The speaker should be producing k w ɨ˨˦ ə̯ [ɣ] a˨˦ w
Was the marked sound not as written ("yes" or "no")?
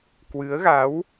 no